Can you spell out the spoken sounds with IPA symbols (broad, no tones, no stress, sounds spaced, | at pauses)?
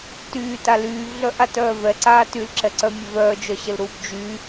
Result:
t yː t a l yː v ɮ œ ʔ a t œː v ɛ ǀ aː t y l ǁ ɛ ǀ œ mʲ œ v œː d͡ʒ œ ɕ ə l ɾ uː b d͡ʒ y